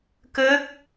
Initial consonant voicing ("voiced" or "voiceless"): voiceless